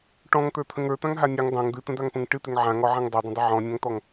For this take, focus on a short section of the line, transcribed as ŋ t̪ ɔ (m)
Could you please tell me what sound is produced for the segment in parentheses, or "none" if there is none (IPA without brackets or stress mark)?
ŋ